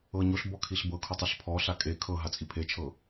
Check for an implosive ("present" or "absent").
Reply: absent